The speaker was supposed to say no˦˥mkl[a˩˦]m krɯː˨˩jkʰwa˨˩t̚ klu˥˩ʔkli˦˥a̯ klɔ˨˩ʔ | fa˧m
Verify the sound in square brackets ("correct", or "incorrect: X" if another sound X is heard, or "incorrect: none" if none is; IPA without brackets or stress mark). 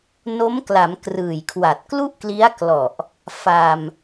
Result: correct